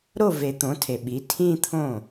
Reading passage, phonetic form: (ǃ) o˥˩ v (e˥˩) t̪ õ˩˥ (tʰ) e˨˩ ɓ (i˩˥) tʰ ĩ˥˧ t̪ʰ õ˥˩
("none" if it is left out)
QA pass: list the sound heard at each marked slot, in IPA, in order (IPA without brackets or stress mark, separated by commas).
ɾ, e˨˩˦, tʰ, i˩˥